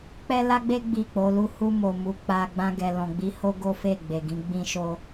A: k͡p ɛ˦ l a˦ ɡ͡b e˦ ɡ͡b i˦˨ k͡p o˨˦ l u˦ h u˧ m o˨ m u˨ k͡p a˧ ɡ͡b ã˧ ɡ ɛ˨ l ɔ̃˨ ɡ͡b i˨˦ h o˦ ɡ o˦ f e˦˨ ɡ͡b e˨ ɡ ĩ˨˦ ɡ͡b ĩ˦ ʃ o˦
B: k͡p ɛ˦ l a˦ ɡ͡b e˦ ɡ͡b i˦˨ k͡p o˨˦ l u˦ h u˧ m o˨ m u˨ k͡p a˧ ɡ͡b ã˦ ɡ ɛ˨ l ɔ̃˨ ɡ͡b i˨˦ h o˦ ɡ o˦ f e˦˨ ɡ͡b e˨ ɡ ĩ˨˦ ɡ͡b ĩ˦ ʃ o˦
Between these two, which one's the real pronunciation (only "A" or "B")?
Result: A